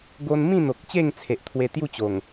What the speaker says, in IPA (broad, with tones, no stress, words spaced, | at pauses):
ɡo˧nmĩ˥˧ n̪o˨k̚t͡ɕe˥˧ŋ t͡sʰe˨ʔt̪ʰwe˧ t̪ju˥˧t͡ɕo˨˩ŋ